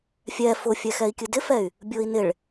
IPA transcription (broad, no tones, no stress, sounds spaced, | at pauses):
fʲ ɛ f ʊ fʲ ɛ x ɛ i̯ kʲ ɨ d ɪ f ɛ y̯ | bʲ ʊ i̯ n ɪ ɭ